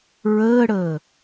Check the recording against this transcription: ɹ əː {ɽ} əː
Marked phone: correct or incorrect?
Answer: correct